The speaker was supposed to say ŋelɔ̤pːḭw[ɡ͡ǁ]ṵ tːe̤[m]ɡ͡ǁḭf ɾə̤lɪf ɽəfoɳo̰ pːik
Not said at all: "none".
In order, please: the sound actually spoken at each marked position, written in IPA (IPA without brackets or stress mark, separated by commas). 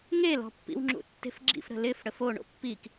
ŋ͡ǁ, f